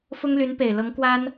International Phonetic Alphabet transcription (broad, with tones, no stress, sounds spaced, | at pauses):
f ʊ˥ ŋ l y˧˥ n p e˨˩ ɪ̯ l ɤ˧˥ ŋ k w a˥ n